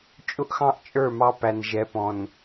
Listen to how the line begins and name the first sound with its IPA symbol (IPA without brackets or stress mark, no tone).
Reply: t͡ʃʼ